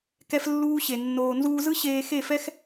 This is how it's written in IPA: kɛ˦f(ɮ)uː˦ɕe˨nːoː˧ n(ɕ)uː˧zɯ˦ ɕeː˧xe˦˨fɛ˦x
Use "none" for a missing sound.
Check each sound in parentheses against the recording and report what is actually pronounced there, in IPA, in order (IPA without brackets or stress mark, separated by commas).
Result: lː, z